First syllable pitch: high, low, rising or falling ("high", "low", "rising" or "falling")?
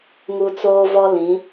high